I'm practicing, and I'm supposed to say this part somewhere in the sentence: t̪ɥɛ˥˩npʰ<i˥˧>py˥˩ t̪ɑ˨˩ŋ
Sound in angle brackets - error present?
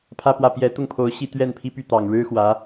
yes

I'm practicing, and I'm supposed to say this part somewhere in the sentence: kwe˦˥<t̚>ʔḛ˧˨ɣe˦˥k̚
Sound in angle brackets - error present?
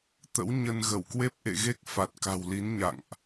yes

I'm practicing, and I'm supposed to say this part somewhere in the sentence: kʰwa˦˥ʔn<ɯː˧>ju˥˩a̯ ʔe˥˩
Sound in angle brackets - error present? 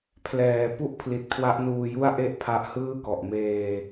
yes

